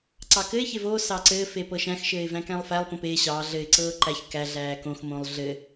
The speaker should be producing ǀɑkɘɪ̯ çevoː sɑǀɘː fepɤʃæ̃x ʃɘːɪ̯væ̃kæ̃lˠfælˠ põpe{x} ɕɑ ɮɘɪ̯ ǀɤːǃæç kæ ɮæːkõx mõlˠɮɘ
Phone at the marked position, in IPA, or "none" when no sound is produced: none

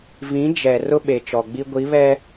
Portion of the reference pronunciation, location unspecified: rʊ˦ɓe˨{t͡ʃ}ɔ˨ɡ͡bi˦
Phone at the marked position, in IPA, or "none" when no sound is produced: t͡ʃ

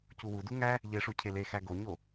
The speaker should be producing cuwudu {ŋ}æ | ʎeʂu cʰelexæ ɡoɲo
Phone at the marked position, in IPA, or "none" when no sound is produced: ŋ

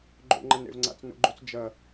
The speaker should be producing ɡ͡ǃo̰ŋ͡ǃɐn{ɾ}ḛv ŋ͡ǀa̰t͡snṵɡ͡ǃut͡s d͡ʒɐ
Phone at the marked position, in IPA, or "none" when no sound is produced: ɾ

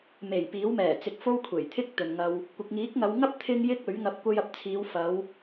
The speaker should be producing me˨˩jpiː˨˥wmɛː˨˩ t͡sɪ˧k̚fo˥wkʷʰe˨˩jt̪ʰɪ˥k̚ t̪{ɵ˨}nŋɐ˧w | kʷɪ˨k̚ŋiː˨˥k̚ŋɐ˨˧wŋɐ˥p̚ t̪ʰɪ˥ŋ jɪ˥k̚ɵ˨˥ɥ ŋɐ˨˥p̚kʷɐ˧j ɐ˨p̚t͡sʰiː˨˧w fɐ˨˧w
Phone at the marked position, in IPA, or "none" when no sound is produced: ɵ˨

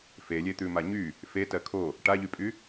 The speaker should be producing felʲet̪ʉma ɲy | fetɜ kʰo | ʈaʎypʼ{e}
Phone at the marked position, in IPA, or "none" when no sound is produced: y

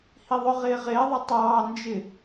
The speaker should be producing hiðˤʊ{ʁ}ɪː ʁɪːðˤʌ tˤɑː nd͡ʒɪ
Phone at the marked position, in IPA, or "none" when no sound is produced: ʁ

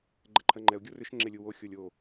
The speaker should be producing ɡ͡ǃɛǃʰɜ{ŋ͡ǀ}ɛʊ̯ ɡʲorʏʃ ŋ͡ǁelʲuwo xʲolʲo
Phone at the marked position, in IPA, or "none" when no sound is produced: ŋ͡ǃ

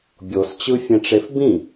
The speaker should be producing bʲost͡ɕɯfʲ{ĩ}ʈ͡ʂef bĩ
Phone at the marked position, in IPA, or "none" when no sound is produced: ẽ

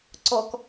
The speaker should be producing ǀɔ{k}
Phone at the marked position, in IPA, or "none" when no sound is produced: k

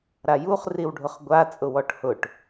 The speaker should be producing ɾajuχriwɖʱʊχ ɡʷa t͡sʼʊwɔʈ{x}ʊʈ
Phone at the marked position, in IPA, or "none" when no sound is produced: h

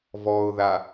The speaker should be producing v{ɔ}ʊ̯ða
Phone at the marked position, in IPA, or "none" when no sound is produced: ɔ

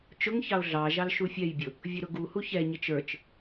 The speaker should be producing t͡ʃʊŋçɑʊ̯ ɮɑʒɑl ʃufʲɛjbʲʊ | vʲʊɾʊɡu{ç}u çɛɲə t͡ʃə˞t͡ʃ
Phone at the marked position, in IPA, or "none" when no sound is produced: h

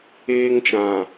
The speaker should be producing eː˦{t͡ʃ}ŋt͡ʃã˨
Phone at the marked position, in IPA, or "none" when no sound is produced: none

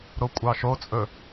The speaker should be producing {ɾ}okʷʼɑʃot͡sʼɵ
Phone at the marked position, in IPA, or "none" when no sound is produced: ɾ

